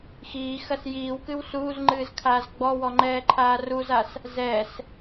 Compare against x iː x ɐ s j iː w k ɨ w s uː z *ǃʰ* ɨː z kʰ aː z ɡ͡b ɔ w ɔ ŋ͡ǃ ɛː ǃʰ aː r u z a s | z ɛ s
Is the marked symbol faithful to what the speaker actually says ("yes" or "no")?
no